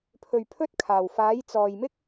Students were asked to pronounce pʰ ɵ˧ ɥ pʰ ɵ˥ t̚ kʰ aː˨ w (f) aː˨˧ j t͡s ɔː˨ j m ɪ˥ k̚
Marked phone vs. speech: correct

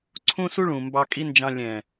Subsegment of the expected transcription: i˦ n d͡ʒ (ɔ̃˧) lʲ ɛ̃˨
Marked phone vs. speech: incorrect: ɑ̃˧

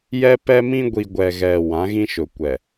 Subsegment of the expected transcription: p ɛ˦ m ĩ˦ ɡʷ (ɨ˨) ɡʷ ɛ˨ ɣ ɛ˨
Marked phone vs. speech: incorrect: i˨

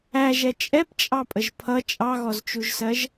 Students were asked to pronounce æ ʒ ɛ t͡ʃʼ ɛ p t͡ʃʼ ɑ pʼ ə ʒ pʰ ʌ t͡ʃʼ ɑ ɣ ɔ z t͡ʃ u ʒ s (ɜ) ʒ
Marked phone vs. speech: correct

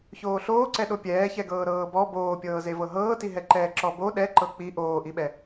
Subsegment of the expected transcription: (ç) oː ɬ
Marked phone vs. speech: correct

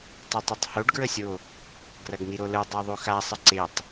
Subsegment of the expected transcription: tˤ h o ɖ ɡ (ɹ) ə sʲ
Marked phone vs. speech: correct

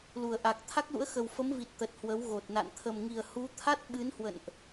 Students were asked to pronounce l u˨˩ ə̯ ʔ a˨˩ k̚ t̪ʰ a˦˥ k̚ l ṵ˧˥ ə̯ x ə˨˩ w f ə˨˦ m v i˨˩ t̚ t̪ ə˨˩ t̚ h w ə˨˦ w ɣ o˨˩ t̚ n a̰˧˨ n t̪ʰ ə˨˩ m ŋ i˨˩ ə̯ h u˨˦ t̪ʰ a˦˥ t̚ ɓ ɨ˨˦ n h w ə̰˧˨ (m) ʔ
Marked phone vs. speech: incorrect: n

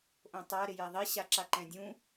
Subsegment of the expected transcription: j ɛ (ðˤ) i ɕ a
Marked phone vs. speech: correct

